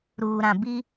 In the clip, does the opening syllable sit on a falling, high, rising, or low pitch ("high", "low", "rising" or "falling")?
low